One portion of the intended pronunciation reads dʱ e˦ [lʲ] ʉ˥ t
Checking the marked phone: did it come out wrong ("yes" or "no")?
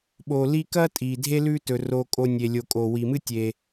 yes